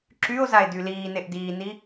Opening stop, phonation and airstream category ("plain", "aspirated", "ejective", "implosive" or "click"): click